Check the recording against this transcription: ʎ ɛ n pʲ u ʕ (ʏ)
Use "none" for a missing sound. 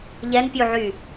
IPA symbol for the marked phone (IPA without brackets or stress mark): y